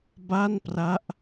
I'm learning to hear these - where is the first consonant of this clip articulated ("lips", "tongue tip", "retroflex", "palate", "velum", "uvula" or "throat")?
lips